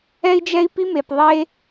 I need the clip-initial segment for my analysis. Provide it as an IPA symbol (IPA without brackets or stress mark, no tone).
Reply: ɛ